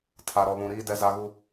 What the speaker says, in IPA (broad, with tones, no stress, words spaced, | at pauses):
tʰa˨ɾɔ˨βũ˨ɾiː˦ dɛ˦za˦ɣu˦